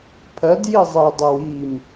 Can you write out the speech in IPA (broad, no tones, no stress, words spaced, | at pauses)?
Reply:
pʰɜdji zˤedˤew im